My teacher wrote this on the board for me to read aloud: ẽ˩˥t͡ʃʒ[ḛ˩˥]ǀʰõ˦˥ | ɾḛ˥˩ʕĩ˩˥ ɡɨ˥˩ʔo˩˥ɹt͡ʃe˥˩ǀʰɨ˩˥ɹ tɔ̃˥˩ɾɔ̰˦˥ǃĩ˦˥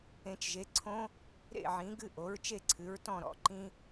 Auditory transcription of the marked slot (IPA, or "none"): e˩˥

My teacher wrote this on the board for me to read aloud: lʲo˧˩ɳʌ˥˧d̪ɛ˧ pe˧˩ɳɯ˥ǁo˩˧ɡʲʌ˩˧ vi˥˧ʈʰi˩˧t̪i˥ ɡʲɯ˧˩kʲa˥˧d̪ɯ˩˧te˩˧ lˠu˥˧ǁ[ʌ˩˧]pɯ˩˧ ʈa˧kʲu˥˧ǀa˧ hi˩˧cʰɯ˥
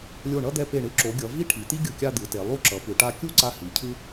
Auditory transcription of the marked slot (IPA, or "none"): ʌ˩˧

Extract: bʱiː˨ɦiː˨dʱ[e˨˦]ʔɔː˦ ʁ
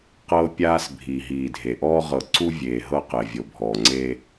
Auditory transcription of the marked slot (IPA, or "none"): e˨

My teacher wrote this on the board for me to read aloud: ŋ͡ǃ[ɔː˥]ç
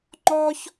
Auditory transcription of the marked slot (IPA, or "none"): ɔː˥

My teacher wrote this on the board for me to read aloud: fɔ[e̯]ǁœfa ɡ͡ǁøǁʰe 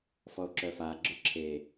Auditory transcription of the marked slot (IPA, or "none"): o̯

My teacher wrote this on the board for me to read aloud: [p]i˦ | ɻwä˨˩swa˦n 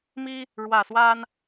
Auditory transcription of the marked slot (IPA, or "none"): m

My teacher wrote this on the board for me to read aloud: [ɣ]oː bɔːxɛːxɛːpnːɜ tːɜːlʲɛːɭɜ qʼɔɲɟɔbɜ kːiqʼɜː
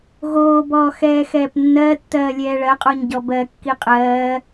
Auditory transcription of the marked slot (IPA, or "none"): ɣ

